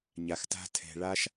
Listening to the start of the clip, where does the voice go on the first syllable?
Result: low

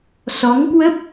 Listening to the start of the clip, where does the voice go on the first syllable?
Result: rising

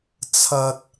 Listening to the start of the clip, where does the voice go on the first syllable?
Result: low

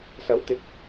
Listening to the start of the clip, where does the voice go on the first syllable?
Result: rising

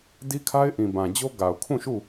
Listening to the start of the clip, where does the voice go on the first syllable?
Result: high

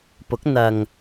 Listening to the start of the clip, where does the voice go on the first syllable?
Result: rising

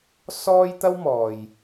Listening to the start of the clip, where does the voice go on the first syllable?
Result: high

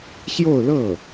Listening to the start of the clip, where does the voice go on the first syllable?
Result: falling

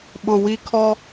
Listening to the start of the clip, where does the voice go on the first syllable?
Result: low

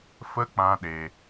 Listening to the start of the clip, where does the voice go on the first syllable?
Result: high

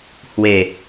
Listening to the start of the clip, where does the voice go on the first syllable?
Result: falling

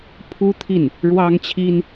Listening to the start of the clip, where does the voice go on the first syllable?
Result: high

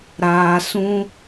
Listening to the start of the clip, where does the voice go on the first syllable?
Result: low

